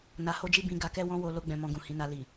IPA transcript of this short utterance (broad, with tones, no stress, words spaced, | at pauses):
na˧ho˦d͡ʒi˦ bĩ˧ ɡa˧kɛ˦ wɔ̃˧wo˨ lo˧ɡ͡bɛ̃˨ mɔ̃˧ɡũ˨hĩ˨˦na˧ li˨